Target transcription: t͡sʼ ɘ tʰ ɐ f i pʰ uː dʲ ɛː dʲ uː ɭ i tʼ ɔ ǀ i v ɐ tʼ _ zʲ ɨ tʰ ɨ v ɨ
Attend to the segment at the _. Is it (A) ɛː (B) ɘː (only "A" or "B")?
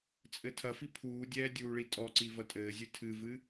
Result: B